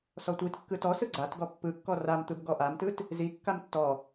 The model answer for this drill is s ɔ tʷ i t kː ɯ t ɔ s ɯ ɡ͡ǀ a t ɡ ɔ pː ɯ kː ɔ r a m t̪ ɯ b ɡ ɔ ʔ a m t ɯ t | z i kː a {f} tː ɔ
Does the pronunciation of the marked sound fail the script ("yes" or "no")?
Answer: yes